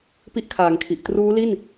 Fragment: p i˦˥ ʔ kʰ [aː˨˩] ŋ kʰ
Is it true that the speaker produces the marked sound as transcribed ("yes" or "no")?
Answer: no